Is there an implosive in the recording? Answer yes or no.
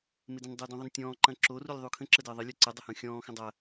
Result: no